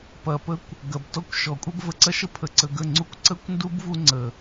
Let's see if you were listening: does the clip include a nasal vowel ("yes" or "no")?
no